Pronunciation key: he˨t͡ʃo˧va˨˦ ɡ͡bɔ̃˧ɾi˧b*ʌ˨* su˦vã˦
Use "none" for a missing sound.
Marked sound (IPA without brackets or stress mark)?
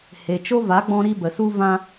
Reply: ə˨